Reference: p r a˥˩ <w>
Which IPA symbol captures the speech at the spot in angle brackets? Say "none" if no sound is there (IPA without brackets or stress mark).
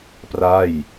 j